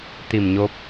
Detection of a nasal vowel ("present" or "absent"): absent